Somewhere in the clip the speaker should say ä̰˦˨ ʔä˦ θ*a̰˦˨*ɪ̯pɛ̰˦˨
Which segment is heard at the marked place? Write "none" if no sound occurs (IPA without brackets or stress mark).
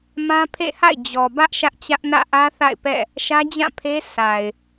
a̰˦˨